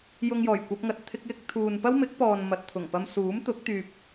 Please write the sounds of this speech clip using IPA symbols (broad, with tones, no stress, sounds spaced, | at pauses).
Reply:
j ʊ˧ ŋ j ɔː˨˩ j kʷ ɐ˧ p̚ ŋ ɐ˨ t̚ t̪ʰ ɪ˥ k̚ j ɪ˥ k̚ t̪ʰ uː˨ n p ɐ˥ w m ɪ˨˥ k̚ p ɔː˨ n m ɐ˨ t̚ t̪ʰ ʊ˨˩ ŋ p ɐ˧ m s uː˨˥ m t̪ ʊ˨˥ k̚ t̪ yː˨ p̚